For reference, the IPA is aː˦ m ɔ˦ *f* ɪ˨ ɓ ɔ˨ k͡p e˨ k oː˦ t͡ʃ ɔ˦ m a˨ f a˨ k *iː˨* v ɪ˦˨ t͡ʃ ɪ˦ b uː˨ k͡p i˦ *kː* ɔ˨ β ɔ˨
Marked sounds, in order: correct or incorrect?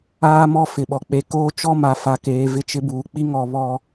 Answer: correct, incorrect: eː˨, incorrect: ŋ

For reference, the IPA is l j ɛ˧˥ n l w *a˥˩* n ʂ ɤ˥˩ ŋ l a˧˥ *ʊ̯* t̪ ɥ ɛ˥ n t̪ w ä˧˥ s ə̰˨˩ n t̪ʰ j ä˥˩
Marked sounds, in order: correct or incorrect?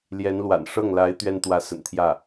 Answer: incorrect: a̰˨˩, incorrect: ɪ̯

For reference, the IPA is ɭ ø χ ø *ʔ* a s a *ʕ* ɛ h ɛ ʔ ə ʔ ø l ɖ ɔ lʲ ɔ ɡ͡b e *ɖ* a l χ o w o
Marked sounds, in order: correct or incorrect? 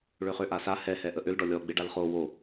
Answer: correct, incorrect: h, correct

